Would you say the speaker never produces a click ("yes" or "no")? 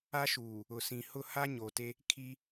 yes